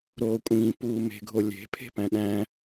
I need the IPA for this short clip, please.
ɾoːkʷʼĩː puːme̤ ɡʱolʲe̤ pʰe̤pæ̃ɗæ̃

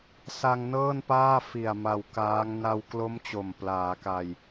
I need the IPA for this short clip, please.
sa˧ŋ nɤː˥˩npaː˥˩fi˨˩a̯ ma˧wkaː˦˥ŋ na˧wklo˦˥m t͡ɕo˨˩mplaː˩˦ka˧j

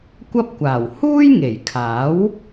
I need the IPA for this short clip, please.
kʷɐ˥p̚kʷaː˨˩w huː˥jŋe˨˩jkʰaː˨˥w

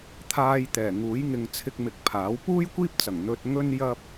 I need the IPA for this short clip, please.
t̪ʰaː˧jt̪ɛː˨˩ ŋuː˨˥jŋɪ˧ŋ t͡sʰɪ˧k̚mɪ˨˥k̚ pʰaː˨˥w puː˥jkʷiː˥p̚t͡sɐ˨˩ŋ n̪ɵ˧t̚ ŋɵ˥njɐ˥p̚

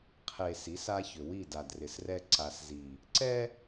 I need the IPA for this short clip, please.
qʰe˨ si˨˦s a˦çʏ˨ wi˦˨da˨drɪ˨srɛ˦ ǀa˨szi˨ | ǀɛ˦

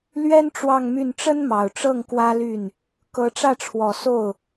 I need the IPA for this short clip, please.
lɥɛ˥n ʈ͡ʂwɑ˥˧ŋmy˥˩n ʈ͡ʂə˥nmɑ˨˩ʊ̯ʈ͡ʂɤ˥˩ŋ kwä˥ly˥˩n | kɤ˧˥ʈ͡ʂä˥˩ʈ͡ʂʰwɔ˨˩ so˥˩ʊ̯

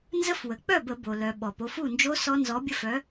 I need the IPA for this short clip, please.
nzə˦˥fwə˩ k͡pœ˥˩bə˧˩˧bo˩lœ˩ ɓɔ˩po˩˧˩fu˥˩nd͡ʒo˦˥ sɔ˦˥nzɔ˨˥bʲə˦˥fœ˨˥

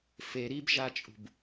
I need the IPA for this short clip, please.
fe ɾibʒat͡ʃʼṳb

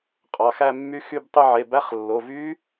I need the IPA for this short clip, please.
qʼɑ˩˧˩xæ˥˧ mːy˦˥xy˥˧btˤy˥˧ ʕe˩˧˩bæ˦˥χ lːo˩˧˩vy˦˥

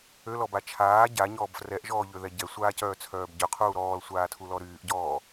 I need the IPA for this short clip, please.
ølɔba t͡ʃʰaː ɟaɲɔːb frɛʔʒɔːʎøðɛ ɟɛsʷaːcœːt͡sʰœːb ɟøqʰuː ɾɔːlsʷaːtʰulɔ ɾyːʔɟɔː

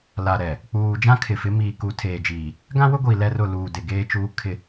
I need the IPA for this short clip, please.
la˨ɾɛ˨ | k͡puː˨ d͡ʒã˦kʰɪ˨fɪ˨˦ miː˨ku˨tʰeː˨d͡ʒiː˨ | ɡã˦wʊ˦ɡʷiː˨ lɛ˦rʊ˦˨ luː˨dɪ˨ ɡeː˦t͡ʃuː˦ kʰɪ˦˨

